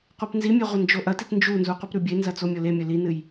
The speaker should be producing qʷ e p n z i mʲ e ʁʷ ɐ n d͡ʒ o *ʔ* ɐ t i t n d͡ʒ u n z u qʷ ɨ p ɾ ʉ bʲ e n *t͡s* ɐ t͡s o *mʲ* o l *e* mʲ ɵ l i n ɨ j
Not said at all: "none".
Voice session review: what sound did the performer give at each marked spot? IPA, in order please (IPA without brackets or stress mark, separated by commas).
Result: ʔ, z, mʲ, e